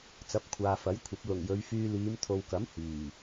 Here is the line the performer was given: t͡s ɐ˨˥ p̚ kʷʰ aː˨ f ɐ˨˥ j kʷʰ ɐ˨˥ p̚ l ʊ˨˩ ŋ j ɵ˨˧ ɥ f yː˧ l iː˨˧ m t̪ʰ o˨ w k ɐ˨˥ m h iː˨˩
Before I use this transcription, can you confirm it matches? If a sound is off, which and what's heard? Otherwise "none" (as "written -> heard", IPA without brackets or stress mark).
none